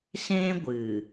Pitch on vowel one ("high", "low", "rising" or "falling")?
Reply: high